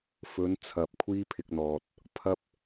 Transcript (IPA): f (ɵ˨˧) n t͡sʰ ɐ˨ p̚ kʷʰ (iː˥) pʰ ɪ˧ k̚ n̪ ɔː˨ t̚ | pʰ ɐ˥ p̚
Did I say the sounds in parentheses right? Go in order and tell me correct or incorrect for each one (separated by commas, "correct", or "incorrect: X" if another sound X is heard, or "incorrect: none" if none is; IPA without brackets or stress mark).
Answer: incorrect: ɵ˨˥, correct